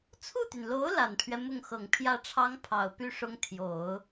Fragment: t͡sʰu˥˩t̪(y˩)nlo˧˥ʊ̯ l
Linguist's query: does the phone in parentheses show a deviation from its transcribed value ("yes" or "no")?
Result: no